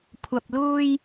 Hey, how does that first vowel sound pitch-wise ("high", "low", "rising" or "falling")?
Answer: low